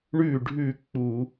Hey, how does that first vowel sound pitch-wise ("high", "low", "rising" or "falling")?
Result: falling